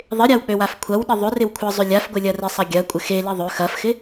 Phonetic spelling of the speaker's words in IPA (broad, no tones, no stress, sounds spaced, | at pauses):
ðˤ ɪ ɾʲ a w k͡p ø w a f kʷʰ ɐ w ɗ ɪ ðˤ ʏ r ɪ w kʷʰ ə zˤ ʏ lʲ a f ɡʷ ɪ lʲ ɐ r ɪ sˤ ɐ ɡʲ ɐ kʷʼ ɪ x e l i ðˤ ø x ɐ f x ɪ